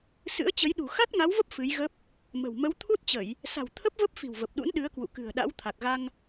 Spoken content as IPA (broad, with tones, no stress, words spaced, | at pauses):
sɨ̰˧˥ə̯t͡ɕə˨˦jɗṳ˨˩ xa˦˥t̚ŋa˨˦wvə˦˥p̚ fɨ˨˦jɣə˦˥p̚ | mə̤˨˩w mə˨˦wt̪ʰu˦˥t̚t͡ɕə˧˩˨j | sa̤˨˩wt̪ʰə˦˥p̚və˦˥p̚ fi̤˨˩wvə˨˩p̚ɗṵ˧˥n ɗɨ˨˦ə̯kwṵ˧˨ kɨ̤˨˩ə̯ɗa̰˧˥w t̪ʰa˨˩k̚ɣa˧ŋ